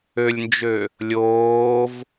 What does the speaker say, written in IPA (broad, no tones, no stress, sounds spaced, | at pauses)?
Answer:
ø lʲ n d͡ʒ ø | lʲ oː v